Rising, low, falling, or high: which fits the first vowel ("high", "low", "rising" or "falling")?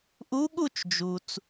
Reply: rising